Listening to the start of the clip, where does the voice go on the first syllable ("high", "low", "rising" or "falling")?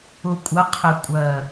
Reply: low